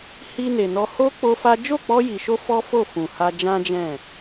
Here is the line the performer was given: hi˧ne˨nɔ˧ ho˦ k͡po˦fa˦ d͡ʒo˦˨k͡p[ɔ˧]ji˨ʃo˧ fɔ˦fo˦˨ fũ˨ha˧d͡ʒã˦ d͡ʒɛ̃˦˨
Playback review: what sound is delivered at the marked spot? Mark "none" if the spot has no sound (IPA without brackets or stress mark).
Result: ɔ˧